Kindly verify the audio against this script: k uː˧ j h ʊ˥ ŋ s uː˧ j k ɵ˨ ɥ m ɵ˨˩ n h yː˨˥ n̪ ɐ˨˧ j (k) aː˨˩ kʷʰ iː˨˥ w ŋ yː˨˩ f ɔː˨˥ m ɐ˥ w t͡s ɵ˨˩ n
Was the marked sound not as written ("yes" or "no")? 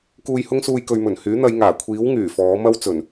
yes